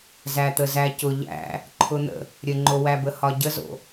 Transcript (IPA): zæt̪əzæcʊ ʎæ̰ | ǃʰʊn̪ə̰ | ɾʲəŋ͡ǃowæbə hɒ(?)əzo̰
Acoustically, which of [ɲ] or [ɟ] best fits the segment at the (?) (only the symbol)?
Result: ɟ